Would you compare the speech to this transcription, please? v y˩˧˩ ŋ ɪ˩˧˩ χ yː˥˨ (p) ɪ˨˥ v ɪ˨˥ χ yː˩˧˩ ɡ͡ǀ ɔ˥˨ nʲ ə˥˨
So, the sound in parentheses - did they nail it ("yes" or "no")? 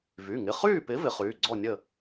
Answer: yes